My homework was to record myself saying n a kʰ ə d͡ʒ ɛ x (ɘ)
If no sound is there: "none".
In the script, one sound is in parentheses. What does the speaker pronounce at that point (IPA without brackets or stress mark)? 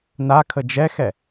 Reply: ɛ